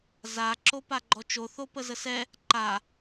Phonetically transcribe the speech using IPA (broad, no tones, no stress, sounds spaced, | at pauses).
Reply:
z a ǁ o p a ɡ͡ǃ ɔ t͡ʃ o θ o p ə z ə s ɛ | ǃ a